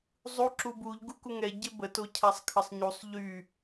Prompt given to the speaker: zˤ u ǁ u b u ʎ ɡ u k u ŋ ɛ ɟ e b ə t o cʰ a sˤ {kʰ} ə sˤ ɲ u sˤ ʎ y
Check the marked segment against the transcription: correct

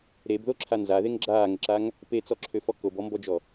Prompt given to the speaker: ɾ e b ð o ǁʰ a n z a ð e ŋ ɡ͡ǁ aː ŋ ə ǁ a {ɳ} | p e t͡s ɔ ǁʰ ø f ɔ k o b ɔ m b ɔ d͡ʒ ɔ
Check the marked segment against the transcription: incorrect: ŋ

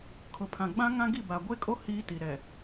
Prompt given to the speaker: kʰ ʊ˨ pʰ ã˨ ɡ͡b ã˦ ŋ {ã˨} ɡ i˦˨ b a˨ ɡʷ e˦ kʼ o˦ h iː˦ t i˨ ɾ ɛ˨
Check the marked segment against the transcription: incorrect: ã˦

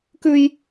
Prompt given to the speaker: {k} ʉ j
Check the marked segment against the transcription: correct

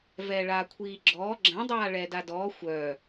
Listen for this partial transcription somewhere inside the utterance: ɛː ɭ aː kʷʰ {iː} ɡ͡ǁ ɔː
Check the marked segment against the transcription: correct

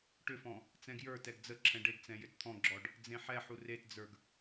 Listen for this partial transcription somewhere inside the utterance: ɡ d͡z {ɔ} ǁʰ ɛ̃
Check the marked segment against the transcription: incorrect: ə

